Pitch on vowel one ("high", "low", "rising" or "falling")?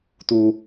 high